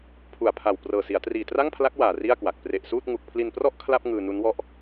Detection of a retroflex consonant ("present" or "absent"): absent